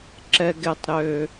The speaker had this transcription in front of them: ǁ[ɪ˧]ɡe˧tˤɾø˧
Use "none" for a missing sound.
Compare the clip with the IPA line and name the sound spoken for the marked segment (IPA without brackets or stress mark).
ɛ˧